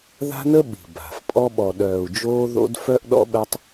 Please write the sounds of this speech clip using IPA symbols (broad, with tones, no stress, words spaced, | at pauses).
ða̤˦nə˦ ɓi̤˨ba̤˨f pʼɔ˦ɓɔ˨ ɗœː˨u̯d͡ʒoː˦ðo̰˦d fœ˦ʔɗɔ̰˦ɓɛ˦tˤ